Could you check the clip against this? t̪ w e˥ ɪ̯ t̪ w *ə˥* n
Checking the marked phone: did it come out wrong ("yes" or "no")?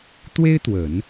yes